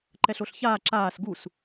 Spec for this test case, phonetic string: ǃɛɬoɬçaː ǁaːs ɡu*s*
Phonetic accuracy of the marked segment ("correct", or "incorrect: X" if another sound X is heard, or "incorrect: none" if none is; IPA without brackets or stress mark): correct